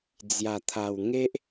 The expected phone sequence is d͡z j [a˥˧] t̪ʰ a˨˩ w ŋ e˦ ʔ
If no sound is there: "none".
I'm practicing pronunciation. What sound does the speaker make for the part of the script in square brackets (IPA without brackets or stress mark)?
a˨˩